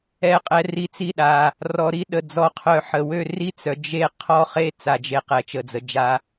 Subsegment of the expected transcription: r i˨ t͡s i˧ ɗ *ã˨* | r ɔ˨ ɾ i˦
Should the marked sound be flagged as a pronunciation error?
yes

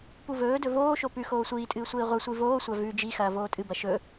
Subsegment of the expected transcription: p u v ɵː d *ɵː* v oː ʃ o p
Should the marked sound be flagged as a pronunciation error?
yes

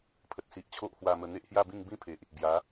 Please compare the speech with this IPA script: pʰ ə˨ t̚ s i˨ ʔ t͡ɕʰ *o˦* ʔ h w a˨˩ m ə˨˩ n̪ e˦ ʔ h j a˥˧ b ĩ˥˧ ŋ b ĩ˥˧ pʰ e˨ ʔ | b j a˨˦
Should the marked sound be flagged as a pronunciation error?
no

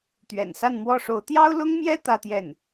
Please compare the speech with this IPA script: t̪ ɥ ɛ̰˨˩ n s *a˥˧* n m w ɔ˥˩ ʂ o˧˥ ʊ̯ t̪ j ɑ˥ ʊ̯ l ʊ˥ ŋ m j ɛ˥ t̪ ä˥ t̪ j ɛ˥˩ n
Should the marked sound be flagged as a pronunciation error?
no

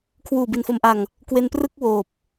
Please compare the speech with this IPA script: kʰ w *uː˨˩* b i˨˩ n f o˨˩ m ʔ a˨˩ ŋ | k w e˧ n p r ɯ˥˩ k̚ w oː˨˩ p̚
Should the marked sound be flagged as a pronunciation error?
no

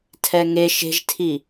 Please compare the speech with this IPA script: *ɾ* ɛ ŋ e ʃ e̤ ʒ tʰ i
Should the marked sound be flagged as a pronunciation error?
yes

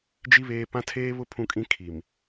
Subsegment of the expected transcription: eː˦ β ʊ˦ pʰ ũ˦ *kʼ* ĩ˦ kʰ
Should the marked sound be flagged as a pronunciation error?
no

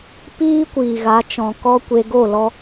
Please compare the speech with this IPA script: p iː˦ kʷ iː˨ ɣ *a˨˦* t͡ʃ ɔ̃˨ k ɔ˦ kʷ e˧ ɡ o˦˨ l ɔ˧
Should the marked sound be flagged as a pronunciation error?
no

